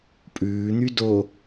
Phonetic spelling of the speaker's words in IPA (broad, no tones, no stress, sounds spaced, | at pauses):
pʼ ʉː n̪ y d o